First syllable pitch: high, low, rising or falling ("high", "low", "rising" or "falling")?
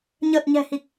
low